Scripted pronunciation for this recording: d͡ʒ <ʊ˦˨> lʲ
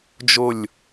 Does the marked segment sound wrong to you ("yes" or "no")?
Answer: no